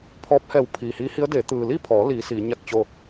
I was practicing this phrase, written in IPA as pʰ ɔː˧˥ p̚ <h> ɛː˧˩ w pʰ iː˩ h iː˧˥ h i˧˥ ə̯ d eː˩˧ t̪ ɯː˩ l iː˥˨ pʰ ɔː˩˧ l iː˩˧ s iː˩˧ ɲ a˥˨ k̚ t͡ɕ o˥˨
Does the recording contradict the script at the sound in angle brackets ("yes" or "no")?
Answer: no